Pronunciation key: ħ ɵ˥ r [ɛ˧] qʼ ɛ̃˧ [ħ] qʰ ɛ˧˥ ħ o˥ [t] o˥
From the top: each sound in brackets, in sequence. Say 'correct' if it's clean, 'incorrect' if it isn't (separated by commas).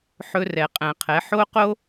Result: correct, incorrect, incorrect